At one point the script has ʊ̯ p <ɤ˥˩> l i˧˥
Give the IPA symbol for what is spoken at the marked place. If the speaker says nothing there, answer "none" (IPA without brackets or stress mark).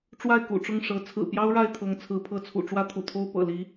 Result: ɤ̰˨˩